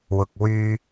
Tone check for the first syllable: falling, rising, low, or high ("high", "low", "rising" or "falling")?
low